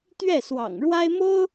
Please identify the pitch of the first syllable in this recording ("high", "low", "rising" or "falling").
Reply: falling